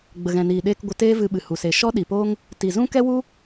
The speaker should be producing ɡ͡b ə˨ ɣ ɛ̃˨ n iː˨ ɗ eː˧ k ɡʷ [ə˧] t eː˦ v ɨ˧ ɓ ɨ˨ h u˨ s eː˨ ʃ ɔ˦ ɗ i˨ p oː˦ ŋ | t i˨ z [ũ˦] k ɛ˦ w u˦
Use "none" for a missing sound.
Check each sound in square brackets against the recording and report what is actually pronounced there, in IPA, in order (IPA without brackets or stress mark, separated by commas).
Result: ə˧, ũ˦